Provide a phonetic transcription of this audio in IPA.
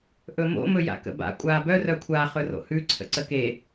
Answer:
ʔ ɵ m o̰ m ɵ j a̰ k ə̰ b a̰ kʷʼ aː b œ r œ kʷʰ a χ ɵ r o̰ h ʉ ǀʰ ə̰ ǀ ə k e

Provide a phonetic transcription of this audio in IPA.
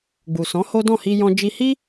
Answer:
ɡ͡b u˨ s ɔ̃˨˦ h o˦ d ɔ̃˦˨ h i˧ j ɔ̃˦ d͡ʒ i˦ h i˦

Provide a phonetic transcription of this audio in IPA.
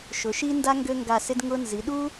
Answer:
ʃ ʊ˨˦ ʃ i˥ n d a˥ ŋ ɡ ø˥ ŋ ɡ a˦˨ s ɪ˥ d ŋ ʊ˥ n z i˨˦ ɗ u˥

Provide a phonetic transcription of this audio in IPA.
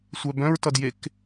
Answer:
sʷ œ b œ̃ ɹ t ʌ d j e k

